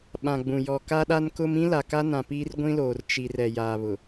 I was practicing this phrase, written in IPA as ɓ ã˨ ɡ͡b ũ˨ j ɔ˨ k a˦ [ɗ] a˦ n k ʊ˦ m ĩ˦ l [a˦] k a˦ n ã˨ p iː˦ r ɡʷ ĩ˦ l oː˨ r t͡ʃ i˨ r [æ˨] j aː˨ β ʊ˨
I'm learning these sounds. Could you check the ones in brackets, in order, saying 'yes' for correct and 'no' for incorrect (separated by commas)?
yes, no, no